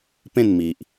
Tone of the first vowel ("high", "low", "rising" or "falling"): falling